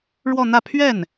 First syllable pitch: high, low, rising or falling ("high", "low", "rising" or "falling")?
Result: falling